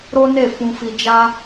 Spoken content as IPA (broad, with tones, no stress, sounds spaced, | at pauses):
ɾ o˦ n e˦˨ f ũ˧ f i˧ d͡ʒ a˦